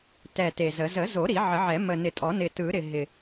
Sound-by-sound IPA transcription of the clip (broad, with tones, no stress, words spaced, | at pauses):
tɛ˨˩ te˨˩zə˨˩˦ zə˨˩˦zo˨˩˦ ɾi˨˩˦ʕə˨˩˦ʕɛ˨˩˦ mə˨˩nɪ˨˩˦tʼɔ˨˩˦ nɪ˨˩tɯ˨˩˦ɾɪ˨˩ ɦɪ˨˩